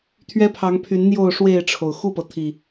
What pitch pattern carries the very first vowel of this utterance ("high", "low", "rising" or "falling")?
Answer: high